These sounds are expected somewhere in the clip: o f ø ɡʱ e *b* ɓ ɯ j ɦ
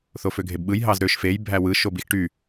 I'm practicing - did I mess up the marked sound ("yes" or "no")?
no